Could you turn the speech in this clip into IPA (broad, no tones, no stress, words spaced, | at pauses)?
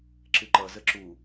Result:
ǁɨǃʌ zəǁu